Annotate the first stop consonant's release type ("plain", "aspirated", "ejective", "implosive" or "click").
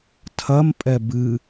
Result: aspirated